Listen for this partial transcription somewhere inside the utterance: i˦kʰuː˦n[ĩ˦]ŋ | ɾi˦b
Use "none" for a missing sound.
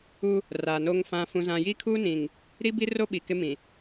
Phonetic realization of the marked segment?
ĩ˨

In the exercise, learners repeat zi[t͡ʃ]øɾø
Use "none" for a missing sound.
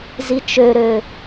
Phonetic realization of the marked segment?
t͡ʃ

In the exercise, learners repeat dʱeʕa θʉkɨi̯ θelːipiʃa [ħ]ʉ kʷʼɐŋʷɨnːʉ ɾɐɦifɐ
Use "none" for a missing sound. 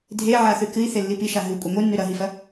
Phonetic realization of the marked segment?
ɦ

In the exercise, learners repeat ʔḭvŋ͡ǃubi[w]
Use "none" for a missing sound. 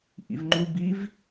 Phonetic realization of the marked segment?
v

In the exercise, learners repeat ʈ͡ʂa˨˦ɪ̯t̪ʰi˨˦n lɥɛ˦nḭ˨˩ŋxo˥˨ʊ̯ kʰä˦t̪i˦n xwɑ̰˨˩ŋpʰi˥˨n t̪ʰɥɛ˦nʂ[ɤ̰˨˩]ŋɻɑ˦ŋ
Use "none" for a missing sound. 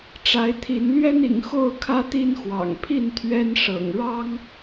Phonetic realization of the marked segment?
ɤ̰˨˩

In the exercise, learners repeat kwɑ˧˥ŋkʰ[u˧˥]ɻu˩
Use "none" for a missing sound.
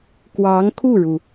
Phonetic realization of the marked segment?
u˥˩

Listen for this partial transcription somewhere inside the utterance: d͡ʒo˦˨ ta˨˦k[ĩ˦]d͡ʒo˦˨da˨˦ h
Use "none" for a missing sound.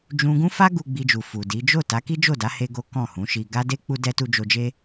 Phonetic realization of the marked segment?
i˦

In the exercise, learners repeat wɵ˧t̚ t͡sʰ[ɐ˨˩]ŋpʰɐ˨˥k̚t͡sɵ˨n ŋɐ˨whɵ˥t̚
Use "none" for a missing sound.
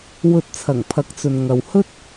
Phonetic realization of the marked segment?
ɐ˨˩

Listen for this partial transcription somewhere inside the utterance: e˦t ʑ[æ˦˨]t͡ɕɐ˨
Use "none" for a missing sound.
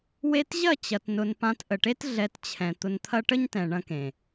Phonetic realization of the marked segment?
ɐ˦˨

